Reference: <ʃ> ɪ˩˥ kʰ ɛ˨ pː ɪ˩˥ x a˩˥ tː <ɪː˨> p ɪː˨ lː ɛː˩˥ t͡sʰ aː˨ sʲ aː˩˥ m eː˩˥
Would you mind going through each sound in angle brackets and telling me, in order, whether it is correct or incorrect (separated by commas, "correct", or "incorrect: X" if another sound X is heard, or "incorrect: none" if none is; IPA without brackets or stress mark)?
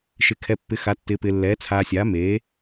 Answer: correct, correct